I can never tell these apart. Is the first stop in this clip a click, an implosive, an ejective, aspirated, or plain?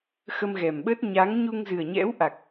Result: implosive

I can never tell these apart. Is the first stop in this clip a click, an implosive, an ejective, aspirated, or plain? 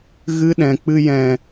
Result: implosive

